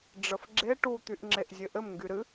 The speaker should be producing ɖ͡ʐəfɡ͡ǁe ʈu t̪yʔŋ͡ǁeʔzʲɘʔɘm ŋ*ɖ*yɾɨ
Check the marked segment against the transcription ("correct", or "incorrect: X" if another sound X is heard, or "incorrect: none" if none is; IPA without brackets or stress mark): incorrect: ɡ